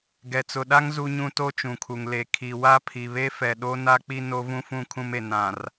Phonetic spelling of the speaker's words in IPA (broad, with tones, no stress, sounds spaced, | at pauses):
ɡ ɛ˨ t͡s ʊ˨ ɗ a˦ ŋ z u˦ ɲ ũ˦ t o˦ t͡ʃ ũ˨ kʰ u˨ ŋ l e˨ kʰ i˨ w a˦ pʰ i˨ β e˦ f ɛ˨ ɗ o˦ n a˦ k͡p i˦ n o˦ v ũ˦ f ũ˦ kʰ ũ˦ m e˨ n ã˨ r